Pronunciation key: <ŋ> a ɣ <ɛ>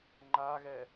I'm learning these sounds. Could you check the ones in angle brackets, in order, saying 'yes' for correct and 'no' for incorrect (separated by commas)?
no, yes